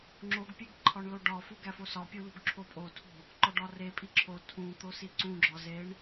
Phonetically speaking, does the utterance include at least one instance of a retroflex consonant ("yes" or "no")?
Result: yes